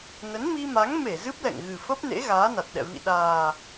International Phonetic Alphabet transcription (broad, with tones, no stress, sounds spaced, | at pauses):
n ə˨˦ n m i˧ m a˨˦ ŋ m e˧˩ z ɨ˦˥ p̚ l ɛ̰˧˨ ŋ ɣ ɨ˨˩ f ə˦˥ p̚ n ḛ˧˥ ɣ aː˨˦ n a˨˩ t̚ ɗ ɛ̰˧˨ v ḭ˧˨ ɗ aː˨˩